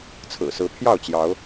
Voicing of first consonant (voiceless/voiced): voiceless